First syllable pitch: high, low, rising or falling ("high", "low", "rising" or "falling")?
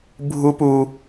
high